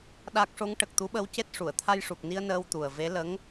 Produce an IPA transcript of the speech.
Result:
ɗa˦˥k̚ ʂo˧˥ŋʈə˨˩k̚t̪u˧˥ɓə˧˥w ce˦˥t̚ ʂu˨˩˨ə̯t̪ʰa˧jʂu˨˩k̚ni˧ə̯ nəː˧wt̪u˨˩ə̯ve˧˥ lə˧˥ŋ

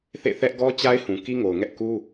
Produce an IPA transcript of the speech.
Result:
θḛ˦˨θɛ˦ʔ ɡɔ˦t͡ɕa˦ɪ̯ hũ˨ki˦ŋo˨ʊ̯ŋɛ˦ʔ ku˦

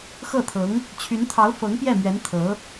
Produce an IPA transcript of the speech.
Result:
xɤ˥˩t̪ʰɤ˧˥ŋ | t͡ɕʰy˧˥nt̪ʰɑ˧˥ʊ̯ fɤ˧˥ŋ pjɛ˥˩mɥɛ˧˥n t̪ʰɤ˧˥

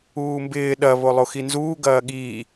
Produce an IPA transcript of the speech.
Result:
uːmbɪː ɗɐ βolˠoxinzuː ɡɐːɠiː

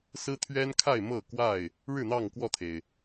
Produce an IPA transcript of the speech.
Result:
sɹ̩˦t̪ʰɥɛ˦nkʰa˥˨ɪ̯ mɤ˥˨kwa˥˨ɪ̯ | ɻɻ̩˥˨n̪ɑ˥˨ŋ kwɔ˥˨t̪ʰe˩ɪ̯

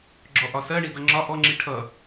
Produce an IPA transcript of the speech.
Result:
ɡ͡ǁɔʔɒsɜɳi dʌŋ͡ǁɒ ʔɔŋ͡ǁi ʈʰʌ

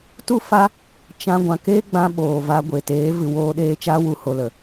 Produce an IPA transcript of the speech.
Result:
tu˦ fa˦ | t͡ʃã˧ ɡʷã˨ke˦ɡ͡bã˧ ɓoː˨va˧ ɡʷe˨teː˨˦vɨ˨ woː˧ɗeː˧t͡ʃa˦wu˨ ho˧lə˨

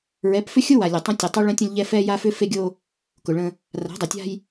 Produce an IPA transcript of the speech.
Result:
ɹɛ˨˦pfʏ˦xʲʊ˦ wa˨lʲʊ˨tˤə̃˦ tʲə˨tˤʊ˦ ɭə̃˦tʲə̃˦lʲʎɛ˦ fɛ˦ja˦fʏ˦ fe˦ɡʲo˦ | kʊ˨ɭə̃˦ | ra̤˨˦dˤə˨tʲa̤˦j

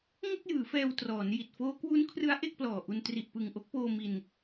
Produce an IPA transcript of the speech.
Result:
ŋo˥˩k̚jɯː˩˦ fɛː˧wtrɔː˩˦nji˨˩t̚ foː˦˥ kwu˦˥nkʰrɯ˦˥a̯ ʔe˥˩k̚plɔː˨˩ʔu˧n tri˨˩ʔpɯ˨˩ŋʔo˦˥k̚poː˧ mi˧n

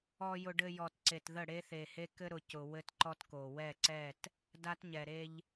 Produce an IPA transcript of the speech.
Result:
ɔ˨jʊ˨ɖɘ˨ jɔ˨tǀe˨tðə˦˨ ɽe˦θe˨he˦ kɘ˦ɾʊ˨cʊ˨ wɘ˦tǃɔ˦tko˨ wɛ˦˨ǀɛ˦˨t | da˦tɲɛ˨ ɾe˦ʎ

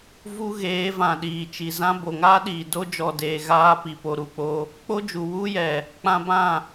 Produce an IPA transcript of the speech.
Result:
vu˦ɣeː˨˦vã˨ ɗiː˨t͡ʃi˨zã˦ bo˨ŋaː˦ɗiː˨ do˦ d͡ʒɔ˨deː˨ ɣaː˧pi˨po˨ ɾu˨k͡po˧ | k͡po˦d͡ʒu˨ wu˦jɛ˨ | k͡pã˧bã˦˨

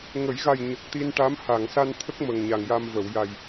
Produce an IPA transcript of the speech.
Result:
ŋə˨˩˦jɣa˨˩j ɲə˨˩k̚t̪i˧nʈa˧˥m ha˨˩˨ŋsa˧nt̪ʰə˦˥k̚ mə˨˩ŋɲa˨˩ŋja˧m və˨˩˨wja˨˩j

